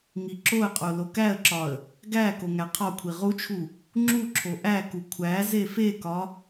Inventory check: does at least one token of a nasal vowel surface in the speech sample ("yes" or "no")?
no